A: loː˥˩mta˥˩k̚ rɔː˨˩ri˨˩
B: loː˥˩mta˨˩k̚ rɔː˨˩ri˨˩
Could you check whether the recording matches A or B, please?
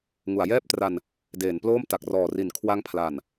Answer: B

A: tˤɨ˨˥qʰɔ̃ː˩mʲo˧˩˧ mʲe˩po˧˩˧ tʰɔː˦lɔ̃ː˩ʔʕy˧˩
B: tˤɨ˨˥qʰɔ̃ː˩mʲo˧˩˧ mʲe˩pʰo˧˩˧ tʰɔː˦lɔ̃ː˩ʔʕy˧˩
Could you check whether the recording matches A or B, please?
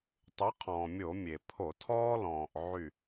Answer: B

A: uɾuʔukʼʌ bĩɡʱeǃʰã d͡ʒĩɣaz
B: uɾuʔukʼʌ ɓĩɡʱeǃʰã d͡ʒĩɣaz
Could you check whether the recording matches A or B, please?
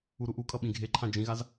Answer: B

